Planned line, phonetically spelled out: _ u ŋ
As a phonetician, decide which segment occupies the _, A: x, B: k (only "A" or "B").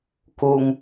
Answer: B